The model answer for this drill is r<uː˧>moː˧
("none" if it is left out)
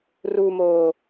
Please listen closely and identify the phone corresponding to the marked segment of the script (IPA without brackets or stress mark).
uː˧